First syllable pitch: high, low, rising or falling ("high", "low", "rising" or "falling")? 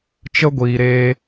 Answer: high